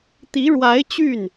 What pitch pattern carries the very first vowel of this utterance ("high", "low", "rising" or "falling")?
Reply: rising